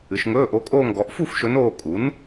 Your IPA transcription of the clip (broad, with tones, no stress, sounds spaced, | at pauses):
ɨ˩˧ ʃ ŋ ɵː˧˥˧ ʔ o˧˥ kʼ oː˥˧ ŋ ɡ ɔ˩˥ ʔ f u˥˧ f ʃ ɵ˧˥ n oː˥˧ kʼ u˩˥ n